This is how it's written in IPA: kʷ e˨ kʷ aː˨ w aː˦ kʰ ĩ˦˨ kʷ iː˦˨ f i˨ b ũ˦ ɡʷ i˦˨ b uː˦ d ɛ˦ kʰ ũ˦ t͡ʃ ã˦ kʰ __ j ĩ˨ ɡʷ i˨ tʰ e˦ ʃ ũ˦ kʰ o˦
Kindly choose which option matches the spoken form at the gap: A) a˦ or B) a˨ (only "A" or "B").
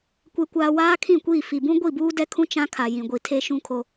B